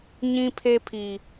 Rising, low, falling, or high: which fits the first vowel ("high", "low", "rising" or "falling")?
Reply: high